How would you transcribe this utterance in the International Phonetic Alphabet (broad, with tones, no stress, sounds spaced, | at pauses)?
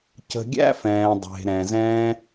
c ə̤˧ ɡʲ æ̰˦ f ɛ̃ː˨ dˤ e̤˨ ɾ ɛ̃˨ z ɛ̃˦